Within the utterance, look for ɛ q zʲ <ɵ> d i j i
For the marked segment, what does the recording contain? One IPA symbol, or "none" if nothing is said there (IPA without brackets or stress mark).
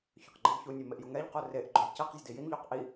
ɵ